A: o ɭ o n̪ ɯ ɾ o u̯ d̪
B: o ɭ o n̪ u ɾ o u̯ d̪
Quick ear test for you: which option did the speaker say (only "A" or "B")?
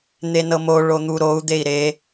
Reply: B